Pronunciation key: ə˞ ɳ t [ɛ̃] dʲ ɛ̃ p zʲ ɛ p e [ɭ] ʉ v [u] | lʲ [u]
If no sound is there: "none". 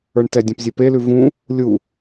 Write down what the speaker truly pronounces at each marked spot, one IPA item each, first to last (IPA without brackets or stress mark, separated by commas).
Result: ɛ, l, ũ, u